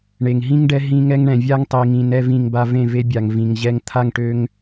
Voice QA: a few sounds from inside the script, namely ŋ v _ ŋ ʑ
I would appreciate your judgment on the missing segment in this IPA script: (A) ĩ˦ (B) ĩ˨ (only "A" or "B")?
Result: B